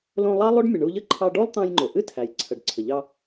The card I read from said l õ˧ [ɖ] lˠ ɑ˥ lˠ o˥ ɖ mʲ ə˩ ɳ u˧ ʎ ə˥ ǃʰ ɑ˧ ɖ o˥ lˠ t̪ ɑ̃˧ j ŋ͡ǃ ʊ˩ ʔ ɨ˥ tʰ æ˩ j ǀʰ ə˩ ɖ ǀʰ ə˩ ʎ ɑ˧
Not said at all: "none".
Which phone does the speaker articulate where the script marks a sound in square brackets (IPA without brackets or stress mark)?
none